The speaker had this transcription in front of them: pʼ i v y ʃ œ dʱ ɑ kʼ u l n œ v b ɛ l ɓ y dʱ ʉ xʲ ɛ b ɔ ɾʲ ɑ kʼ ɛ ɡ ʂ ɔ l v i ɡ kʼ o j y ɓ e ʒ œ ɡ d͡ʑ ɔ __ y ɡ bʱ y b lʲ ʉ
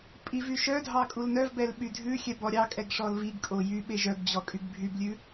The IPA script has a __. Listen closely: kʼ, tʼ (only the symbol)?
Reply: kʼ